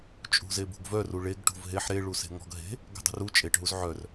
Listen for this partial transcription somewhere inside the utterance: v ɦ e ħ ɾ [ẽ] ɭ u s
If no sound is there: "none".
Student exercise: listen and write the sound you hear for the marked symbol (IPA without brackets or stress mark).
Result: e